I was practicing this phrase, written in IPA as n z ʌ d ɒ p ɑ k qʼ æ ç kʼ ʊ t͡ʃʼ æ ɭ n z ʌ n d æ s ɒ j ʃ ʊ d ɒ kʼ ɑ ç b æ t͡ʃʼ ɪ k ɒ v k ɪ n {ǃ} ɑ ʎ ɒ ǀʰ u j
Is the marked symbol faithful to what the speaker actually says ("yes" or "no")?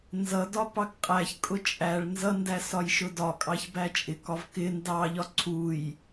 no